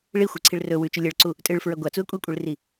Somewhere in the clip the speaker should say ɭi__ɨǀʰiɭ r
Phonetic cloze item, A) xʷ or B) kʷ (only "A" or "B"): A